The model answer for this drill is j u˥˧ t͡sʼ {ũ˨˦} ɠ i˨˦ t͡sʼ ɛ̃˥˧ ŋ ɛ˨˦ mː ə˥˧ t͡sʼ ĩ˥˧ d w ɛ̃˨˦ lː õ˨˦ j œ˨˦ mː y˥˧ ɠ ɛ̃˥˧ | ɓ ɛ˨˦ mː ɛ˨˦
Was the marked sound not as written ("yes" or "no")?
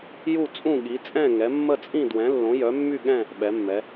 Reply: yes